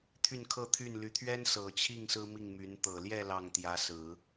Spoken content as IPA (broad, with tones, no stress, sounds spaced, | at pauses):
t̪ʰ y˥˧ n kʰ ɤ˥˧ t̪ʰ y˥˩ n l y˧˥ t̪ʰ ɥ ɛ˥ n s ɤ˨˩ t͡ɕʰ i˥˩ ŋ s ɹ̩˥ m i˥˩ ŋ m y˧˥ n t̪ ɤ˨˩ l j ɛ˥˧ l ɑ˥˩ ŋ t̪ j ä˧˥ s ɹ̩˨˩˦